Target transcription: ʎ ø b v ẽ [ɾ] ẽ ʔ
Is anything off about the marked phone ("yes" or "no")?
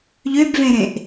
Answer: no